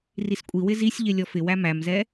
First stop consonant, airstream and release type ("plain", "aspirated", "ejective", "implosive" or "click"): ejective